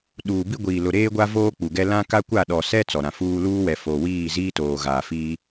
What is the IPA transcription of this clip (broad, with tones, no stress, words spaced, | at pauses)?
ɗuː˨bi˦ ɡʷiː˨lʊ˨ɾeː˦ɡʷa˦ voː˦k͡pu˨ɡɛ˦ lã˦ ka˦kʷa˦˨ɗɔ˨sɛ˦ t͡sɔ˨ɾã˨fuː˦ luː˦wɛ˨foː˨wiː˦˨ ziː˦toː˨ɣaː˨fiː˦